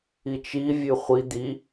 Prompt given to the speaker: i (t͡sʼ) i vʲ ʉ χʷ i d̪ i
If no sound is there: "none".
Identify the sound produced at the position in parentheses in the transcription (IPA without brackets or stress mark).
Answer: t͡ʃ